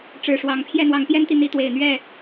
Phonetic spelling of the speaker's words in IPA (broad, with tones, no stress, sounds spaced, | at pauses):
ʈ͡ʂ ɻ̩˨˩ ʂ w ɑ˨˦ ŋ pʰ j ɛ˥˨ n̪ w ɑ˨˦ ŋ p j ɛ˦ n t̪ i˨ n̪ i˨˦ t̪ w e˨˩ ɪ̯ n̪ ɥ ɛ˥˨